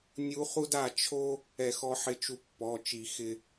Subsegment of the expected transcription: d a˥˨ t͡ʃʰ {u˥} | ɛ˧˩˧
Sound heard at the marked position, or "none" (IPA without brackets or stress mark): o˥